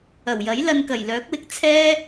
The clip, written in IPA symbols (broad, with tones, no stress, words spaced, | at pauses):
ɐ˨˩wjɐ˨˥j lɐ˧nkɐ˨˩jlœː˨˥k̚wɪ˧k̚ t͡sʰɛː˥